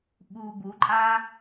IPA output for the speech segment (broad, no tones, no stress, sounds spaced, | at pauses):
ɓ uː b u ǃʼ aː